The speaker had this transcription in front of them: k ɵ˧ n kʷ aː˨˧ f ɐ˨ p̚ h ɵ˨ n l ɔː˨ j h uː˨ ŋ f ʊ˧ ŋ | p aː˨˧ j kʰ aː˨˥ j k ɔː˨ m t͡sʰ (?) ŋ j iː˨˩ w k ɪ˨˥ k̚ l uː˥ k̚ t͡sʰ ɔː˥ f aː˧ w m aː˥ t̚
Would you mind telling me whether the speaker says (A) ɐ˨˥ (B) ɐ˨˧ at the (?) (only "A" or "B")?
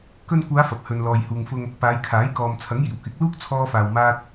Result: A